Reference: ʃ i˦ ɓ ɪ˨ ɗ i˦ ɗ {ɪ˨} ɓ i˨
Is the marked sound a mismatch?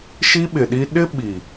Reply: yes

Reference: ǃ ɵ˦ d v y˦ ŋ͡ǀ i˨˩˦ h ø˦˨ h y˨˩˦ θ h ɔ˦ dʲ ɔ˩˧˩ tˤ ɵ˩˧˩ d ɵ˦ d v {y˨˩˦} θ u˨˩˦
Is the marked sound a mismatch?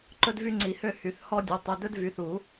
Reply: yes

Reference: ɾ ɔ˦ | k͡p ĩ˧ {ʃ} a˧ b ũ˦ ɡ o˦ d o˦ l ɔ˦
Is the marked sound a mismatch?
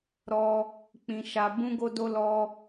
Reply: no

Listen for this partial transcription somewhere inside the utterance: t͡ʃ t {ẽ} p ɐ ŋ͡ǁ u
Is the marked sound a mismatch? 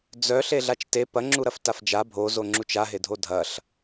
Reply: yes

